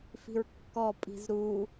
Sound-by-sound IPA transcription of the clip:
f i̤ ɹ kː ɔ pʼ i̤ z ɾ u

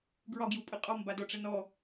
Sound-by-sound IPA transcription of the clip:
ɡ ɹ ɒ ɡ j u pʼ ɨ qʼ ɔ m b a d ɔ ʈ͡ʂ ə n ɔ

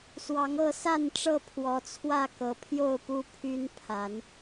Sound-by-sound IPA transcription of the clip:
s w ɑ˨˦ ŋ ɤ˥˨ s a˥˨ n ʈ͡ʂ ɤ˥˨ pʰ w ɔ˨˦ t͡sʰ w ä˥˨ k ɤ˨˦ pʰ j o˥˨ ʊ̯ p u˦ pʰ y˦ n pʰ a˨˦ n

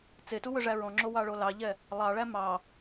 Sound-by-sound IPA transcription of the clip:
t͡s e t u w ɵ ʐ æ ɹ ɔ̃ ŋ͡ǁ o w ɑ ɭ o l ɑ ʎ ɛ | lˠ ɑ ɭ æ m ɑ

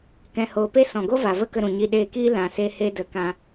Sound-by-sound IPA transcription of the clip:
k ɛ̃˧ h oː˧ p e˦ s ɔ̃˨ ɡ o˦ v a˨ v ə˦ k ə˧ ɾ ũ˨ ɲ i˧ ɗ eː˧ k iː˦ l ã˧ s e˦ h e˦ d ə˧ k ã˧

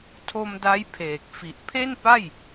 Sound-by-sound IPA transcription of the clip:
tʰ o˧ m d a˦˥ j pʰ eː˨˩ k̚ f i˨˩ ʔ pʰ e˥˩ n p a˥˩ j

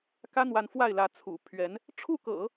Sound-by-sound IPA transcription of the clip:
k ä˥ n̪ w a˧˥ n f w a˥˩ ɪ̯ l ä˧˥ t͡sʰ ṵ˨˩ pʰ ɥ ɛ˧˥ n | ʈ͡ʂʰ u˥˩ k ɤ̰˨˩˦

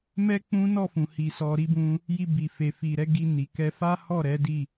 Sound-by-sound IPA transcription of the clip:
m ɛ˦ k͡p ũ˦ n ɔ˦˨ f ũ˨ h i˧ s ɔ˧ ɾ i˦ b ũ˦ | j i˧ b i˨ f e˨ f i˨ ɾ ɛ˨˦ ɡ i˧ n i˨ k ɛ˧ f a˦ h ɔ˦˨ ɾ ɛ˨˦ d i˦˨

